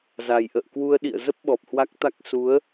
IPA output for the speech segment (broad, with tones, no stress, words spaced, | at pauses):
za˨˩j ʔə̰ː˧˨kwu˧ə̯ ɗḭ˧˨ə̯zə˦˥p̚ ɓɔ˨˩p̚hwa˦˥k̚t̪a˦˥k̚ su˨˦ə̯